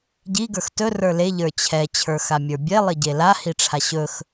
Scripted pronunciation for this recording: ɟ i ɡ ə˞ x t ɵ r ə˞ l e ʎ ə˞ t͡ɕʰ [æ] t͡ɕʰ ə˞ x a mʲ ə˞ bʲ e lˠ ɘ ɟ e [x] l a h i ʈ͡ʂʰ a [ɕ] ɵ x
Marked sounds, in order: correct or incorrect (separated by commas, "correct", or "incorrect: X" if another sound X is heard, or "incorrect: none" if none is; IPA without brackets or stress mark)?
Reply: incorrect: ɛ, incorrect: none, correct